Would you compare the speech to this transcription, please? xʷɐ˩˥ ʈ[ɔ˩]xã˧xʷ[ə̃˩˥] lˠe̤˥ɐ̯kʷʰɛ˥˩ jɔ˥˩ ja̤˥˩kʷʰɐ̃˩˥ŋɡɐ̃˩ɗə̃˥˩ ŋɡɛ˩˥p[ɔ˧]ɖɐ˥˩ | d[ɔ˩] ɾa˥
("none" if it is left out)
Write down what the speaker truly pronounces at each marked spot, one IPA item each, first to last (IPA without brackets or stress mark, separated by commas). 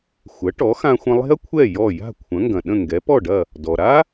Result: ɔ˩˥, ə̃˧, ɔ˥˩, ɔ˩